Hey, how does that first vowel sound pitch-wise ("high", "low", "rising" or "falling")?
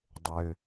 high